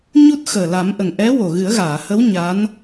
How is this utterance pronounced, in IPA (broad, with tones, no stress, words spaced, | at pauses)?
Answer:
ɲu˦˥t̚ xəː˨˩la˨˩˦mʔə˨˩ŋ ʔɛ˧˥ wo˨˩ɣɨ˨˩˦ə̯ɣaː˨˩˨hə˧˥w ɲa˧˥n